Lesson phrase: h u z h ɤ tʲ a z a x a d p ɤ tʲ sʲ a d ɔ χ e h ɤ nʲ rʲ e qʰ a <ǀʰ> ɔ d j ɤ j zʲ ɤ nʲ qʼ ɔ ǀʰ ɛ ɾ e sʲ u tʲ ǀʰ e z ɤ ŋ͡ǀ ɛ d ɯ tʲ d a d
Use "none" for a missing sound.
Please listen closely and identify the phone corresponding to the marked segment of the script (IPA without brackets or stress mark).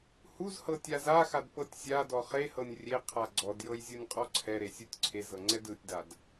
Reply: ɡ͡ǀ